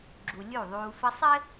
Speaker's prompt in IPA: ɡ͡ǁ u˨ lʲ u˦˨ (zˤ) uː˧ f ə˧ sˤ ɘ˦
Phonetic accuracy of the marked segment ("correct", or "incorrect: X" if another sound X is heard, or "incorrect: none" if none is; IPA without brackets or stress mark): incorrect: ðˤ